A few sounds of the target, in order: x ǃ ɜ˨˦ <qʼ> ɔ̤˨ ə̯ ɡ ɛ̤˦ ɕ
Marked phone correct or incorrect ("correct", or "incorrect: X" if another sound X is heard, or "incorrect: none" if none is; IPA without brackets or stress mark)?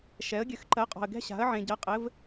correct